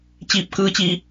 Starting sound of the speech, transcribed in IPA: t͡ɕ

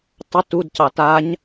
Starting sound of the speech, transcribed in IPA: tˤ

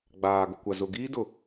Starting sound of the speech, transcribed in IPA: ɡ͡b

